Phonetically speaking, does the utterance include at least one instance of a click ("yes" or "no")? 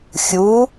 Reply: no